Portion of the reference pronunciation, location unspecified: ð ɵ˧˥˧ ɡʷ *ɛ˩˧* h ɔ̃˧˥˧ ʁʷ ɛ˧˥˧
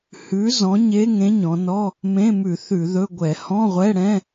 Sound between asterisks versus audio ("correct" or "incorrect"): incorrect